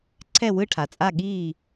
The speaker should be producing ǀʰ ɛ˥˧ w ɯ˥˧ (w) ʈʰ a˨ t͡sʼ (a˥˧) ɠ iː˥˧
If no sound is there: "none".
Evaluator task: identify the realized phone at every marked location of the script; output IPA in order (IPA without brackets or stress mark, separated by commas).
none, a˥˧